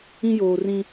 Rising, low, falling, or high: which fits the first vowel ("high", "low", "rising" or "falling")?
high